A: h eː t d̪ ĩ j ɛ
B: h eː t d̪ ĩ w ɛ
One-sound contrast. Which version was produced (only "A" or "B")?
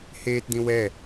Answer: B